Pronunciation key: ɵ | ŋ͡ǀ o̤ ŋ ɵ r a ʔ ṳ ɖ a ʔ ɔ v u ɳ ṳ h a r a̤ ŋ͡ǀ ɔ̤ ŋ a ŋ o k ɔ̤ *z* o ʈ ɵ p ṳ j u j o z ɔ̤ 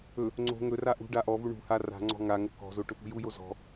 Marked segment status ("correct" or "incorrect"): correct